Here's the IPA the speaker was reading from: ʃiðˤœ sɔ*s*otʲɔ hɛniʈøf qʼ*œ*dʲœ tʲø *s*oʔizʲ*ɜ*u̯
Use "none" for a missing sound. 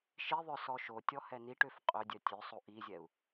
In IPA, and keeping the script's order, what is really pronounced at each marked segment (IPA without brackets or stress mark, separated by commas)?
ʃ, ø, sˤ, ɛ